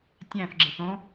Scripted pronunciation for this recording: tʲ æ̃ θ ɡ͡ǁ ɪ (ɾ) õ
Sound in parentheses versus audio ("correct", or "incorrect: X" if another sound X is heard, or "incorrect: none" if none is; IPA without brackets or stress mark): incorrect: θ